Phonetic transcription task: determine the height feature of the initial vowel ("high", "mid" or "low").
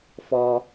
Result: mid